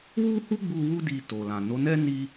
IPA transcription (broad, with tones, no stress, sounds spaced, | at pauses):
w u˦ h u˦ ɡ͡b u˧ w u˦ d i˧ t o˨ l ã˨ n o˨˦ n ɛ˦ n i˦